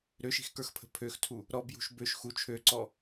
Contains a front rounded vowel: yes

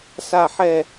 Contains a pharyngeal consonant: yes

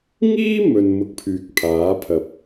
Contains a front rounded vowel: yes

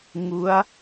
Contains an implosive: no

